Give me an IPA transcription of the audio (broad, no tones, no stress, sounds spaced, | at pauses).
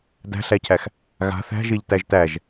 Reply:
d æ̤ ɬ æ cʰ æ x | ɣ a̤ θ æ̤ ʒ e ʎ t æ ʒ t æ ʒ